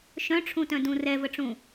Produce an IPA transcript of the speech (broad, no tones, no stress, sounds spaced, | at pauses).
ʃ œ̃ ʈ͡ʂʰ ũ t œ̃ d ũ r ɛ v ə ʈ͡ʂ ũ